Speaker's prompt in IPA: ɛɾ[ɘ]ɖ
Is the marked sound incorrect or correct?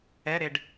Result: incorrect